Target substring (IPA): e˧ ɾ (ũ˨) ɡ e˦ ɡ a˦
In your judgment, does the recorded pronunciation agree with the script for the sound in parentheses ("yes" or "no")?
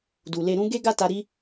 no